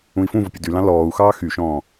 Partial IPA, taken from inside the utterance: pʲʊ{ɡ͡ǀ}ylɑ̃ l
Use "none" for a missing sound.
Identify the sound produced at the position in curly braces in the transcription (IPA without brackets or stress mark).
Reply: d